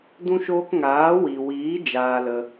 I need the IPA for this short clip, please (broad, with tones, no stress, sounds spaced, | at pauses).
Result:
d ũ˦ ʃ oː˦ k ŋ aː˨˦ w i˨ w iː˨˦ d͡ʒ aː˧ l ə˧